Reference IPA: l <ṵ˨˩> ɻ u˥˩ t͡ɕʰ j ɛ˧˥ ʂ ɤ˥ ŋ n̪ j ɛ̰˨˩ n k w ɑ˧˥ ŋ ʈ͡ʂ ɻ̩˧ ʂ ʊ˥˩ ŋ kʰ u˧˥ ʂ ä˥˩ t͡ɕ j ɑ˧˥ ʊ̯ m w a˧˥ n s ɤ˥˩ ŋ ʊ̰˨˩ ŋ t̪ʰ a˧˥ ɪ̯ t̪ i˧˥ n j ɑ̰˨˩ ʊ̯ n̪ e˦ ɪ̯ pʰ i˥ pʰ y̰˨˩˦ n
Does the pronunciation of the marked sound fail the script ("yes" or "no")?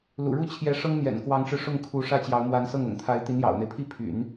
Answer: no